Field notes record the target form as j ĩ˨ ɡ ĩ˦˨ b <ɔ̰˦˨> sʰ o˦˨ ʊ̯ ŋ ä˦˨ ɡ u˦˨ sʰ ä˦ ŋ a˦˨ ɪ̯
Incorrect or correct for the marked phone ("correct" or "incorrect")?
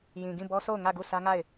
incorrect